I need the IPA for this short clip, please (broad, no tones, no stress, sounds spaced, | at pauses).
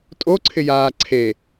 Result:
tʼ o ǀʰ ɪ j aː ǀʰ e